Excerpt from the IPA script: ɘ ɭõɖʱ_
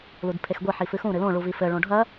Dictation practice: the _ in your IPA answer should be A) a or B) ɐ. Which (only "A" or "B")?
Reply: B